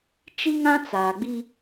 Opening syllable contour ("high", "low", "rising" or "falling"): high